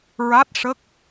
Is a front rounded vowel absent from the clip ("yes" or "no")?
yes